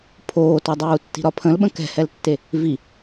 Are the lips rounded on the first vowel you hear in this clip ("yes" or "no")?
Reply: yes